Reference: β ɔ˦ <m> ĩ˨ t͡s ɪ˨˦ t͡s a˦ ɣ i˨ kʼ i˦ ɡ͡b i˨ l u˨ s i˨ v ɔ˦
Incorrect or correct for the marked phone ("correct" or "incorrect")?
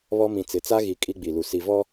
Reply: correct